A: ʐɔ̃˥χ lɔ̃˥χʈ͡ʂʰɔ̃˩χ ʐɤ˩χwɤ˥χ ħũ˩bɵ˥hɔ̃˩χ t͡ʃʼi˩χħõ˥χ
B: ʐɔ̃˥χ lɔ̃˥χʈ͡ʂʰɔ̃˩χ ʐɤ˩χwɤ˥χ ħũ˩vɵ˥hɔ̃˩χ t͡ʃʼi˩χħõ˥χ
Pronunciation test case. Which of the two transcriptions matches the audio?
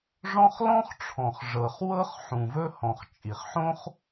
B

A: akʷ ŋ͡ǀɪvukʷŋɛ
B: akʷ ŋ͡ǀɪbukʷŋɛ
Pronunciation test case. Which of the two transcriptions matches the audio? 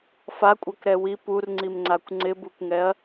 B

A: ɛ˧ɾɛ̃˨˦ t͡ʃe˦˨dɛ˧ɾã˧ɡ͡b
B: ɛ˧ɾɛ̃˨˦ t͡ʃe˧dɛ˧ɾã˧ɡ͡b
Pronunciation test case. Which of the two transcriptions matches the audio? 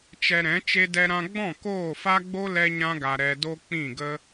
B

